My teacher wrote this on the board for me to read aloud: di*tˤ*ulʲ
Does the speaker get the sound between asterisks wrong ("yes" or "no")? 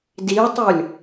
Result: no